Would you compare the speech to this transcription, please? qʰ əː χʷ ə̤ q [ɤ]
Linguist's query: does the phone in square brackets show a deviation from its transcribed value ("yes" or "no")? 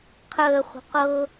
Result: no